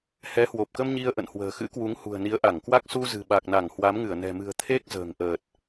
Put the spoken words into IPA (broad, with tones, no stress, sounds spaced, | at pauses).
h ɛ˨˦ h w o˨˩ p̚ k ə˧ m ɲ i˧ ə̯ ʔ ə̰˧˨ n h w ə̤ː˨˩ x ɨ̰˧˥ k w u˨˦ ŋ h ṳ˨˩ ə̯ n i˨˦ ə̯ ʔ a˧˩ ŋ k w a˦˥ k̚ s u˧ z ɨ̤˨˩ ɓ a˨˩ k̚ n a˧˩ ŋ h w a˨˦ m ŋ ɨ˧˩ ə̯ n ɛ̤˨˩ m ɨ̤˨˩ ə̯ t̪ʰ e˦˥ k̚ z ə̤ː˨˩ ŋ ʔ əː˨˩ t̚